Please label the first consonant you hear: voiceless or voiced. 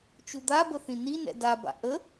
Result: voiceless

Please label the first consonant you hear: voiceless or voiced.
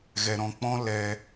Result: voiced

